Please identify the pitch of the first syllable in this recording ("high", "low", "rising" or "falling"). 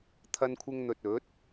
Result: high